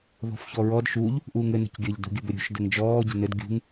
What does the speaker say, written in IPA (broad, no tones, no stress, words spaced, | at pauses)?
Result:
ðɔ̤fçɔɹɔd ʃuʎ | ʔuːŋɘ nə̤cɡʲəʎ dṳɡʲəbɘɾʲṳʃ dɘŋd͡ʒɔː ɟə̤nɘd ɡʲṳŋ